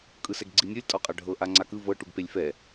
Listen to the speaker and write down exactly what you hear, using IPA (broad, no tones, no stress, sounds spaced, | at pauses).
kʼ ɯ s ɛ ɡ ɡ͡ǀ i nʲ ɤ lʲ tʼ ɔ qʼ a ɖʱ ɤ ʔ a ŋ͡ǀ a k ɯ v ɤ ʈ u ɡ p e lʲ f ɛ